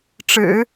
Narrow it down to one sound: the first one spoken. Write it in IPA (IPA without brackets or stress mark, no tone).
ʈ͡ʂ